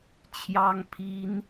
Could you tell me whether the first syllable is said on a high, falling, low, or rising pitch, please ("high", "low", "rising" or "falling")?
high